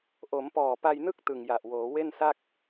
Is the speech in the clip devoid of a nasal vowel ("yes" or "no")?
yes